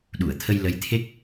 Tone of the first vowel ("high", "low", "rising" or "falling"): low